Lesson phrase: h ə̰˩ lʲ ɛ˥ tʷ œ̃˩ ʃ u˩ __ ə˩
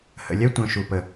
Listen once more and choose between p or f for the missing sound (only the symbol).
p